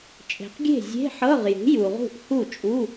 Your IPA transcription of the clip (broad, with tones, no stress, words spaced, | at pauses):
t͡ʃʼe̤˨qɡʲe̤˥˩ zʲe̤˧˥˧ħɤ˧˥˧ʁjṳ˩˥ ju˨ʁṳ˥˩ʔhu˥˩t͡ʃʼu˧˥˧